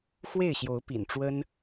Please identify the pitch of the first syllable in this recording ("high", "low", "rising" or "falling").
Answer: falling